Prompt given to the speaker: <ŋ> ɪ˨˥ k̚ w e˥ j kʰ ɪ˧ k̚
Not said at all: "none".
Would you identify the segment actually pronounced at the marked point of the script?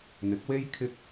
n̪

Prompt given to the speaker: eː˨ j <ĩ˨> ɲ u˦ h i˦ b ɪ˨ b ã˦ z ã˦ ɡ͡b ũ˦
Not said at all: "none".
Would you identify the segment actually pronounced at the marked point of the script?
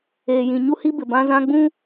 ĩ˨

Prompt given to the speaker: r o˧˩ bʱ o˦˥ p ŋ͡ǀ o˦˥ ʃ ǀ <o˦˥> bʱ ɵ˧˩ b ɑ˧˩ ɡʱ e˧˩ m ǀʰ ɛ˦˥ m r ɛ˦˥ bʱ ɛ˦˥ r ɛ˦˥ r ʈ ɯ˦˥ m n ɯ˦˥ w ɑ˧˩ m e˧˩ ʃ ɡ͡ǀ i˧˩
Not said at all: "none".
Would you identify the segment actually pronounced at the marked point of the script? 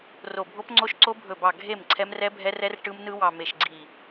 o˦˥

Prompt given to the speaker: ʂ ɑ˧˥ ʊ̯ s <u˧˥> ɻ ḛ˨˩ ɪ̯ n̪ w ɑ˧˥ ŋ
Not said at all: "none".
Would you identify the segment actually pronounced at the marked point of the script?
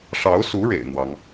u˧˥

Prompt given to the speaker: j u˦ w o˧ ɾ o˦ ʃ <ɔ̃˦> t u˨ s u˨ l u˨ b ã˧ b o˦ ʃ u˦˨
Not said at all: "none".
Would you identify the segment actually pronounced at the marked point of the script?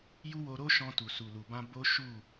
ɔ̃˧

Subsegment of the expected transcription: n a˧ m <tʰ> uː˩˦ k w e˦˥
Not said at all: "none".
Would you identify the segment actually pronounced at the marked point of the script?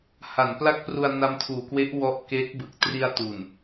tʰ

